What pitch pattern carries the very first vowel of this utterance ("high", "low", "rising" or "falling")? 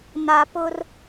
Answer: low